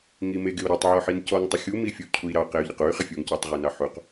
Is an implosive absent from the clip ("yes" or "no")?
yes